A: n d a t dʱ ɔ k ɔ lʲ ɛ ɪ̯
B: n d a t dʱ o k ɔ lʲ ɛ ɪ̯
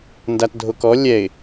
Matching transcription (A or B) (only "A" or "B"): B